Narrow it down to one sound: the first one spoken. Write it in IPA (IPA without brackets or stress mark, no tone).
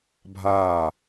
bʱ